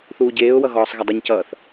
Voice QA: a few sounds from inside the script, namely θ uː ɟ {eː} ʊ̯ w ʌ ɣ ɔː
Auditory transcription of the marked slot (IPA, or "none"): eː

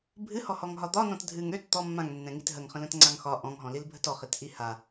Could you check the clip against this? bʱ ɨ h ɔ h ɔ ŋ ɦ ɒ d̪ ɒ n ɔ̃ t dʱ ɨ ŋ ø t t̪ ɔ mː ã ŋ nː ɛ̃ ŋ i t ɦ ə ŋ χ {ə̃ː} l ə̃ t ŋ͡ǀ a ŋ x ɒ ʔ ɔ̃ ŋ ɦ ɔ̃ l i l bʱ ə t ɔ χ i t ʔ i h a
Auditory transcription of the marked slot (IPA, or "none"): ə̃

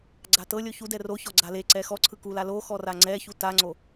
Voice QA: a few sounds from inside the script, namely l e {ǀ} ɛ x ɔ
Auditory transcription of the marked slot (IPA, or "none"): ǀ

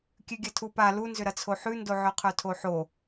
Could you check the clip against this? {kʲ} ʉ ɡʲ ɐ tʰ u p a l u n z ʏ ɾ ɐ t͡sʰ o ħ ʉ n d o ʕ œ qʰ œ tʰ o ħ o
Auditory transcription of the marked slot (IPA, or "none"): kʲ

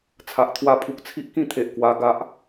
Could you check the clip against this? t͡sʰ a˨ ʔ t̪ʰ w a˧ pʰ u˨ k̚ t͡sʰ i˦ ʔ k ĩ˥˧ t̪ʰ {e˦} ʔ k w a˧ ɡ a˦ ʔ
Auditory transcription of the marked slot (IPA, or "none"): e˨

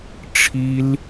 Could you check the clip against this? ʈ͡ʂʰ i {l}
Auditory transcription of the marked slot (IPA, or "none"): l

